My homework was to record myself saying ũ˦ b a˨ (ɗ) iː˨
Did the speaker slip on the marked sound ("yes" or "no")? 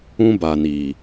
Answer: yes